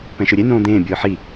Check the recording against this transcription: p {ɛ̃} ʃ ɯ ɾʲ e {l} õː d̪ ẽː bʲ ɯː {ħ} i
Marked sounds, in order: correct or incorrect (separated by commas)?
correct, incorrect, correct